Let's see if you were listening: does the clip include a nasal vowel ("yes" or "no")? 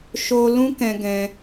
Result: yes